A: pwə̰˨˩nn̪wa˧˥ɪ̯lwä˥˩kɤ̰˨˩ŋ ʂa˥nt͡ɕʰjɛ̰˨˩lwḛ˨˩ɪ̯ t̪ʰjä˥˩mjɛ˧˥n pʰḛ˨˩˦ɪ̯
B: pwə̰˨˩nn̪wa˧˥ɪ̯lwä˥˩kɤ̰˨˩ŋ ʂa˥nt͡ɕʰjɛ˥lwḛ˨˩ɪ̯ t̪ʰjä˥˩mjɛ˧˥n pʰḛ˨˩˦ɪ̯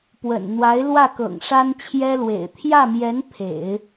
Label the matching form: B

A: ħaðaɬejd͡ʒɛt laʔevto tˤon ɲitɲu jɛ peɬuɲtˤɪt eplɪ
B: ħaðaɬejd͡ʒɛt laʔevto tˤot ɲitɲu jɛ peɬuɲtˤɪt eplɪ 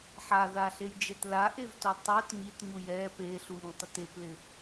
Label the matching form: B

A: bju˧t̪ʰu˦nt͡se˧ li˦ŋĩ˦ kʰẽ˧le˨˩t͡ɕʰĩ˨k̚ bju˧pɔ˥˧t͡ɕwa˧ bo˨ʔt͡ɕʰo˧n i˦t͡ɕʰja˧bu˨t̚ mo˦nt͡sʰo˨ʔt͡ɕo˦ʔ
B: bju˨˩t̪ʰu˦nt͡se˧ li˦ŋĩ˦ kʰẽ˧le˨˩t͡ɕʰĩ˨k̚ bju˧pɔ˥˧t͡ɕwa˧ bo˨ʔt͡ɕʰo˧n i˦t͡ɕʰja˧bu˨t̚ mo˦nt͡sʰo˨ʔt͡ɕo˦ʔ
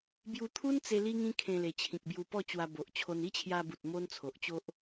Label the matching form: A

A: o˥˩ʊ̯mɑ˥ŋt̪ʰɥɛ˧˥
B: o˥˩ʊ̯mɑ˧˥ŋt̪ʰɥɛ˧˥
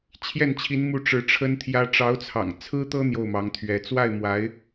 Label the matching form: B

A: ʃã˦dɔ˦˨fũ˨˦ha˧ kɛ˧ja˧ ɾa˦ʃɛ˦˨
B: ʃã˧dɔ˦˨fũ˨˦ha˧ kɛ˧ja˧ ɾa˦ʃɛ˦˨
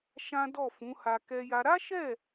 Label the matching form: A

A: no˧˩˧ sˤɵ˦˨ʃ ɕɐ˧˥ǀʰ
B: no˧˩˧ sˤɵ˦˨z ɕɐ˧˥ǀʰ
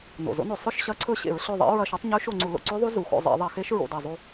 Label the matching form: A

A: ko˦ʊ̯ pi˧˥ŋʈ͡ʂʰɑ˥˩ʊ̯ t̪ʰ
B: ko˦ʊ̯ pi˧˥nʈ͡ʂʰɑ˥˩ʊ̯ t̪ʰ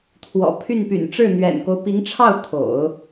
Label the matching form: A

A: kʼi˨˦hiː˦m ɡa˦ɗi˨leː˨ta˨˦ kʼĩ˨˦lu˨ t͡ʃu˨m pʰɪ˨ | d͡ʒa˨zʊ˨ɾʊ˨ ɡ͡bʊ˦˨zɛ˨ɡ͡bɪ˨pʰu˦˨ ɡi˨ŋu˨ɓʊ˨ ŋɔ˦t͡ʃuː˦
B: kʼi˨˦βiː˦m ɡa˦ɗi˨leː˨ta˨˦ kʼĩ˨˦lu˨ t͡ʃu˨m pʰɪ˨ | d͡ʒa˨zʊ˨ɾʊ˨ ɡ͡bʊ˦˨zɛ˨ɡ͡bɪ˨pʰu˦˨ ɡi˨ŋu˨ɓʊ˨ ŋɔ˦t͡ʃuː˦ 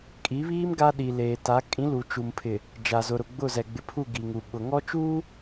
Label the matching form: B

